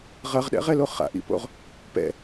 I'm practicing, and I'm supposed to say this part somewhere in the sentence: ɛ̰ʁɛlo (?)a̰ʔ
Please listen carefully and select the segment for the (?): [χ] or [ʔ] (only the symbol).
χ